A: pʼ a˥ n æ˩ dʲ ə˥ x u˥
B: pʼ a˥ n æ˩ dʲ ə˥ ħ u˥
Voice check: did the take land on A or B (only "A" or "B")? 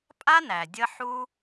B